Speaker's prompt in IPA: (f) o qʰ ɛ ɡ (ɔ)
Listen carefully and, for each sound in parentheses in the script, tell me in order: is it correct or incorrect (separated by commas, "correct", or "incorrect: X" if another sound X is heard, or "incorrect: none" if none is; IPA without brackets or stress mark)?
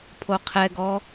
incorrect: pʰ, correct